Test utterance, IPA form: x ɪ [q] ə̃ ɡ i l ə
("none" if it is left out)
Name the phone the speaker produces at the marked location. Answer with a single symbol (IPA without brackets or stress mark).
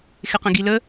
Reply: q